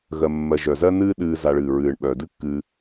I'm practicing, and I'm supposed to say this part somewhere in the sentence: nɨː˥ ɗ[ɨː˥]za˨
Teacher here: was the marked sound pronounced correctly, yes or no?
no